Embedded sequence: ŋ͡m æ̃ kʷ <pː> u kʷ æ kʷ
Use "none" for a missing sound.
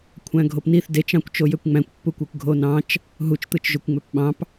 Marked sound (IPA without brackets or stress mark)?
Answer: pː